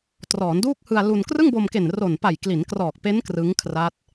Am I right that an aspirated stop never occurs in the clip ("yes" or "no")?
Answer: no